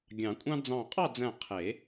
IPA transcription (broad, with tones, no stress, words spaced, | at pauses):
ɡʲɑ̃˨˩˦kʷʼɑ̃˥ d͡zɑ̃˧˩qʼɑ˥˨d͡zæ̃˧˩ qʰe˨˩˦